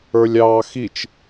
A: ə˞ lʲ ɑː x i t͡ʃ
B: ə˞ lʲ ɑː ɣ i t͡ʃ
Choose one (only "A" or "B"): A